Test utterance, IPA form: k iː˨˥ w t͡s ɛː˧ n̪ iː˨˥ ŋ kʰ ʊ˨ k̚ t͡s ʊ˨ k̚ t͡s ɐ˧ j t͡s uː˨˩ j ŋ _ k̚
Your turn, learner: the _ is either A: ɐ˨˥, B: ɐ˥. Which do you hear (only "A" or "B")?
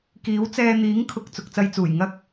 B